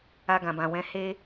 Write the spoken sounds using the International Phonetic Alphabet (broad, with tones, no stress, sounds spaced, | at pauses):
a˧ ɡ ã˨ b ã˨ w ɛ̃˨˦ h e˦